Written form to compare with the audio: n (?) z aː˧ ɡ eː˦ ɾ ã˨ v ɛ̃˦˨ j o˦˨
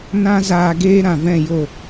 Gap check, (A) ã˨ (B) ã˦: B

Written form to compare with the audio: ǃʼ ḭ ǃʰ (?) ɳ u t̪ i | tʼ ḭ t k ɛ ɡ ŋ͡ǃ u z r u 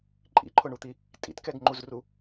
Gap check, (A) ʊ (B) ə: A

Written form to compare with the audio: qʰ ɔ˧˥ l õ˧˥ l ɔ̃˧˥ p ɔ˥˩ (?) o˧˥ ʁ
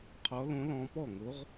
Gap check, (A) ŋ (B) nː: A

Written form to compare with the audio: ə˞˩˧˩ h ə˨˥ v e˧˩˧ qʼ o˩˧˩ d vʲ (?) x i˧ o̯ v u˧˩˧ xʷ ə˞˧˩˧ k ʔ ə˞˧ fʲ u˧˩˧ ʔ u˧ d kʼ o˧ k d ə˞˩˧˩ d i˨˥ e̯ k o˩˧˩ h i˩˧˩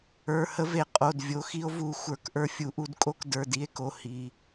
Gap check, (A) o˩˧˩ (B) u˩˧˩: A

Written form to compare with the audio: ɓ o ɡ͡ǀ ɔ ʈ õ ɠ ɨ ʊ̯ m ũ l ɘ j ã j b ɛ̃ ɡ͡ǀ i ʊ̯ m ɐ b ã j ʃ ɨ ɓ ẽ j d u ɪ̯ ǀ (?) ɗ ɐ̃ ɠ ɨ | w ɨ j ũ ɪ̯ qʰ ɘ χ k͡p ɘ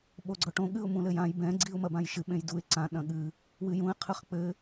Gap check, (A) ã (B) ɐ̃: A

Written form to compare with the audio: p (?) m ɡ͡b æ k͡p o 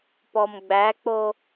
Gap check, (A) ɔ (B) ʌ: A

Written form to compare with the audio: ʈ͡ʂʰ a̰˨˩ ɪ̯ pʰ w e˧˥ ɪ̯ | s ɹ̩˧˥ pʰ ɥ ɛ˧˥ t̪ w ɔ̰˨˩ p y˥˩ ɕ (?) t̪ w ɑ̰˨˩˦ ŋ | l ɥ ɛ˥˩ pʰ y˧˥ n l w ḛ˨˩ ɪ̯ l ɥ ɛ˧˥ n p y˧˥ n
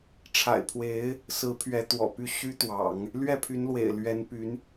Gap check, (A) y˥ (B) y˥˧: A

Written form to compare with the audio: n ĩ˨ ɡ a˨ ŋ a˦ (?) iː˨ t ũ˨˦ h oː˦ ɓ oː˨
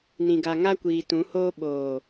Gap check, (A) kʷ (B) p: A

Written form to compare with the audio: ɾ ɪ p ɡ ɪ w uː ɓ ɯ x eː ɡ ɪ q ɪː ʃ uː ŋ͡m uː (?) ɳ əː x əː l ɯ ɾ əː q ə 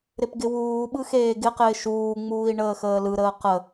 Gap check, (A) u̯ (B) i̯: B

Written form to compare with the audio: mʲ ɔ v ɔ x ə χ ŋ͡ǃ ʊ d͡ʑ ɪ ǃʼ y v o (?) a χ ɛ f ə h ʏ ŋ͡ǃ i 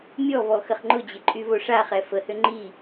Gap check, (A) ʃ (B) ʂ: B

